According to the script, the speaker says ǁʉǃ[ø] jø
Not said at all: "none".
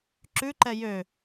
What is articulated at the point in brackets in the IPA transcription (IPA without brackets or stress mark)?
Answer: ɛ